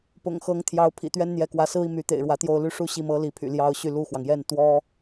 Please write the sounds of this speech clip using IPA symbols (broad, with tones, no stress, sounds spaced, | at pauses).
p ʊ̰˨˩ ŋ x ɤ˧˥ ŋ t̪ʰ j ɑ˧˥ ʊ̯ pʰ ḭ˨˩ t̪ ɥ ɛ˥ n n̪ j ɛ˧˥ k w ä˧˥ s ɹ̩˥ i˨ m y˧˥ t̪ ḛ˨˩ ɪ̯ ɻ w ä˧˥ t̪ j o˥˧ ʊ̯ l y˥˧ ʂ u˥˧ ɕ i˥˩ m ɤ˥ l i˧˥ pʰ y̰˨˩ l j ɑ˥ ʊ̯ ɕ y˥˧ l u˥˩ x w ɑ˩ ŋ j ɛ˥˩ n t̪ w ɔ˥